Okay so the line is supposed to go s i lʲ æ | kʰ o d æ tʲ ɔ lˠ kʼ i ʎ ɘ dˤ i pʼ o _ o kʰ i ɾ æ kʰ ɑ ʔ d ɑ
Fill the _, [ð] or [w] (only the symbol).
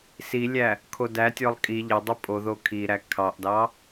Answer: ð